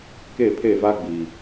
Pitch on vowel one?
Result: falling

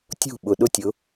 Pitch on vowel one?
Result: falling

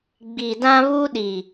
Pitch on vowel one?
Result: low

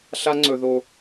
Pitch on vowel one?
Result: high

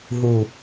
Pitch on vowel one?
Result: low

